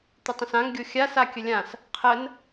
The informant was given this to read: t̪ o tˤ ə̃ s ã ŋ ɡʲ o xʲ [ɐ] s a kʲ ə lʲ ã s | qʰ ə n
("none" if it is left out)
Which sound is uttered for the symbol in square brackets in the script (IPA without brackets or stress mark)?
a